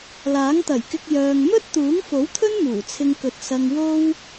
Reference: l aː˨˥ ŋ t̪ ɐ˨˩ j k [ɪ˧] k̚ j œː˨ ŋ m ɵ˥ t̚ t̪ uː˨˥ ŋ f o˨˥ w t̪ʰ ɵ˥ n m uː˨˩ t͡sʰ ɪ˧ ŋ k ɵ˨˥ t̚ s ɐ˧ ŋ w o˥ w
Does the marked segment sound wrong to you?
no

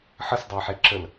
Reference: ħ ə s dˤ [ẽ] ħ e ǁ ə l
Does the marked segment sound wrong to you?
yes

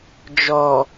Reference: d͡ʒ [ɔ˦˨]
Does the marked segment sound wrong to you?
yes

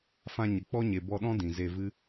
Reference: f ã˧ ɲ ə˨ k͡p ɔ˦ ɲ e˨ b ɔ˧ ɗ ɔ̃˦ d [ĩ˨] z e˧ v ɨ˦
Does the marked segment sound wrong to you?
no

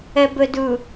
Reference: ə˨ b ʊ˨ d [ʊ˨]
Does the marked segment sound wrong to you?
yes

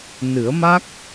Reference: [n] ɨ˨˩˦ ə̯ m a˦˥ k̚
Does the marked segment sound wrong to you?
no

